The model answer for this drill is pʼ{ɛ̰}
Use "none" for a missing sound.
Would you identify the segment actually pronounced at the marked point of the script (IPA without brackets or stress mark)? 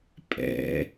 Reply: ɛ̰